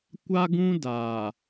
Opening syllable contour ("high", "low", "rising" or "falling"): high